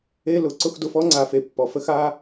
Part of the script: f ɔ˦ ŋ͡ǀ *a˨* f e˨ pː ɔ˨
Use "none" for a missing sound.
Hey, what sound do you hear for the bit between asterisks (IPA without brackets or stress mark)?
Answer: a˨